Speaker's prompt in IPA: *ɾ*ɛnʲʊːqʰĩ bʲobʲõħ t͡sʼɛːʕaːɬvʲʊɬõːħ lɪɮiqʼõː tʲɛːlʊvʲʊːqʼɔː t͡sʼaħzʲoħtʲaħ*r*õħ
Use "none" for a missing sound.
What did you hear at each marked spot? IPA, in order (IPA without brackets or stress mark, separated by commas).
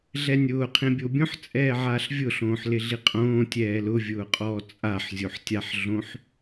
ɮ, ɮ